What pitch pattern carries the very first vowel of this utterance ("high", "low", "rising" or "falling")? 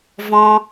high